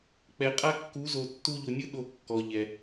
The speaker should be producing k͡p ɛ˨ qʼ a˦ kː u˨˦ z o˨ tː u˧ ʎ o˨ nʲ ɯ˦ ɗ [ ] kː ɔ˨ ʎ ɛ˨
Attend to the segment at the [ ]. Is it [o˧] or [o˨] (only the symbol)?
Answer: o˧